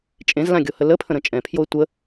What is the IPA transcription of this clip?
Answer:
t͡ʃʼẽzlãɡʲohə ləpʰə̃ɾə̃ t͡ʃʼɛ̃pʰjoe̯ tʷə

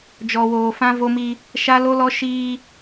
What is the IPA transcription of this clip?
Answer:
d͡ʒɔ˨woː˨fã˦ vo˦mi˦ | ʃa˦lo˦lɔ˦ ʃiː˦

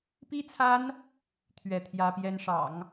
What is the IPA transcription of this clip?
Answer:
pi˥t͡sʰa˥n | t̪ʰɥɛ˥˩t̪ʰjä˥pjɛ˥nʂɑ̰˨˩˦ŋ

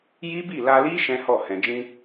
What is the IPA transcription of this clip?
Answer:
ji˦bi˦˨ la˧li˦ ʃɛ̃˦hɔ˦˨ hɛ̃˨d͡ʒĩ˧

